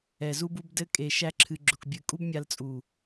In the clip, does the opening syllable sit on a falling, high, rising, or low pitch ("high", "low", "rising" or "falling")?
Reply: low